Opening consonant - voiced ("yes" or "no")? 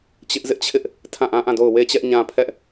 no